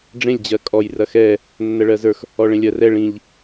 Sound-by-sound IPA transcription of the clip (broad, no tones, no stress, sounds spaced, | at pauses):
ɖ͡ʐ ẽ lʲ d͡ʑ ɜ kʼ ɔ j r ɐ x ɛ | nː ɜ ɭ ɜ z ə˞ x | ɔ ɭ ẽ lʲ ɜ r ɛ ɭ ĩ ʎ